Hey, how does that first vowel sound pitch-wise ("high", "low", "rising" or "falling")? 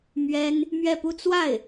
high